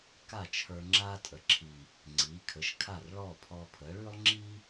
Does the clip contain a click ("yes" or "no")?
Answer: yes